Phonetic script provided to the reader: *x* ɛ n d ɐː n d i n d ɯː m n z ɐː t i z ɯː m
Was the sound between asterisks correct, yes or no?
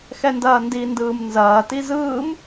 yes